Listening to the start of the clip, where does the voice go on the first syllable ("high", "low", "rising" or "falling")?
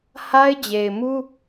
high